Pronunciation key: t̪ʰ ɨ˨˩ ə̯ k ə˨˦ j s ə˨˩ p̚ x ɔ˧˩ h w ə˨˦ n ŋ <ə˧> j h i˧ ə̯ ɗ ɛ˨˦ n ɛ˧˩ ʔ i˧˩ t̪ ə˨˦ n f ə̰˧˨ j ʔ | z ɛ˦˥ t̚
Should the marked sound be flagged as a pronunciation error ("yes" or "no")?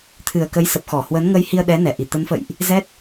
no